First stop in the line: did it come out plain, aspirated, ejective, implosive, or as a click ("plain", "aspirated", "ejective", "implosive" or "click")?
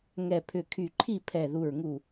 aspirated